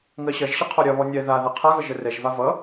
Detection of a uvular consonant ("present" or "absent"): present